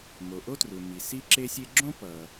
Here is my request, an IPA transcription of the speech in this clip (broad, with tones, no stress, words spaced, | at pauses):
mo˩ʔo˥tru˩ mi˩si˥ǁe˥sʲe˥ ɡ͡ǁõ˥ pʌ˩